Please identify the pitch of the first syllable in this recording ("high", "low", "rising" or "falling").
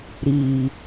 low